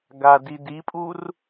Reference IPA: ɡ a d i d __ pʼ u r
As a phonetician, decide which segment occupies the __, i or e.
i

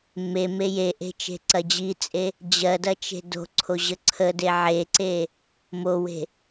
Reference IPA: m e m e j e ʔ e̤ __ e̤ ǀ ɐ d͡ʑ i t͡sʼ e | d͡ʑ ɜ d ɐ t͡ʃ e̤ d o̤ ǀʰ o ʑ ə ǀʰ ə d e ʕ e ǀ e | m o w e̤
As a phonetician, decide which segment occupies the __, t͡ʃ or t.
t͡ʃ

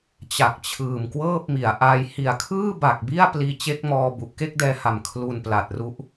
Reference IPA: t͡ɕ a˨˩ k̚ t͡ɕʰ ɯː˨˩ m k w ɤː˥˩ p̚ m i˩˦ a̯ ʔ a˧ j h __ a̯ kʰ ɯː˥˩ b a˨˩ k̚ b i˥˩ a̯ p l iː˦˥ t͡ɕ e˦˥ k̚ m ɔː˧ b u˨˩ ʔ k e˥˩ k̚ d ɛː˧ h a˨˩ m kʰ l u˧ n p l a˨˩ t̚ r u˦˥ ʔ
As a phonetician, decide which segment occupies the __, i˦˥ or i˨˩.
i˨˩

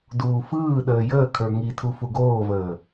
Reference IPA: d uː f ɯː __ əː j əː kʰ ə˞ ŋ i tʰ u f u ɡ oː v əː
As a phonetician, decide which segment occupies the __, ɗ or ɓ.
ɗ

